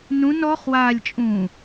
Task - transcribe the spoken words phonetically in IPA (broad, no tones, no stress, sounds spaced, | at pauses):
n ũ n ɔ χ w aː lʲ t͡ʃʼ ũː